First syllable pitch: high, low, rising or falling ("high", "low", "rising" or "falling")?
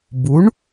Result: rising